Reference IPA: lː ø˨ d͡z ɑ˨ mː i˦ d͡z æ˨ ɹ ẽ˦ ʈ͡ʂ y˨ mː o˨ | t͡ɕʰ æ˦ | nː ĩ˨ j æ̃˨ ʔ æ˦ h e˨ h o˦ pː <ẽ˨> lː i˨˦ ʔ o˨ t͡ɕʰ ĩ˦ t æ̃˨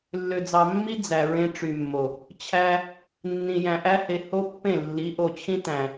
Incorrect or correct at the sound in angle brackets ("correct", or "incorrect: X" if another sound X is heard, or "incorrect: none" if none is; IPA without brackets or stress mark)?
incorrect: ẽ˦˨